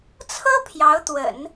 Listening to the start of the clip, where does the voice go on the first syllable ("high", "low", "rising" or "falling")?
high